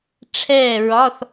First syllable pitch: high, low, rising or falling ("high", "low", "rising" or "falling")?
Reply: falling